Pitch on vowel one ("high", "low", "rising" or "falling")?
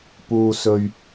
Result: high